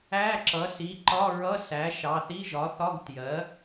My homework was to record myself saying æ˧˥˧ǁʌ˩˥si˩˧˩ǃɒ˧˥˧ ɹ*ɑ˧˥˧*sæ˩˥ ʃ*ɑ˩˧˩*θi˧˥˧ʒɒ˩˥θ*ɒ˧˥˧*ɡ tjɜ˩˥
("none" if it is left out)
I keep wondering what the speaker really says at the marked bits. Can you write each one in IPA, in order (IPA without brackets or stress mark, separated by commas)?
ʌ˧˥˧, ɑ˩˧˩, ɒ˧˥˧